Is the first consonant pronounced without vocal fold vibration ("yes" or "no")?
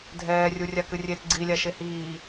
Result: no